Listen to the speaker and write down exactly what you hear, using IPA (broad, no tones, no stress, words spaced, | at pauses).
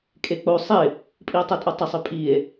kʼek͡po sˤɪ | pʼio̯tˤœtʼotˤɪ sˤøpʼie̯